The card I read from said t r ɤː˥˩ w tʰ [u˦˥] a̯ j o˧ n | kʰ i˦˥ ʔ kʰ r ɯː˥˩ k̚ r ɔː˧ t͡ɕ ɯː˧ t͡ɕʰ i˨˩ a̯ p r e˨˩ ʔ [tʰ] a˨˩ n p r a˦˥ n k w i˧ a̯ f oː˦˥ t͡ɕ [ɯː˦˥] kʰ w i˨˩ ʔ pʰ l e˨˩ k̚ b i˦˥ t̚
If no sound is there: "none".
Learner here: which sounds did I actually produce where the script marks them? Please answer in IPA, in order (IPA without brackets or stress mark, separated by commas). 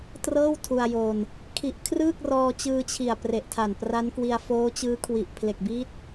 u˧, tʰ, ɯː˦˥